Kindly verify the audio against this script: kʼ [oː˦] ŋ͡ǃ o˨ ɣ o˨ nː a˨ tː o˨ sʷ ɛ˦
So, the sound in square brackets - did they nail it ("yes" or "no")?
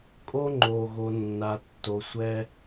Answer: no